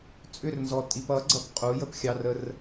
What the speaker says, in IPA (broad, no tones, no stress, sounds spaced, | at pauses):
t͡sʼ ʏ r n z ɔ tʼ i p ʌ ɡ͡ǀ ʌ p qʼ u j ə p xʲ ɑ r ə r